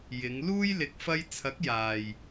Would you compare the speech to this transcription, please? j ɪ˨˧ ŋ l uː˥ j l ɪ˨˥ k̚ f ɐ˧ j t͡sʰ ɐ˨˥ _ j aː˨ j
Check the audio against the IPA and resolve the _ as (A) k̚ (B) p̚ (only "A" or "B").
A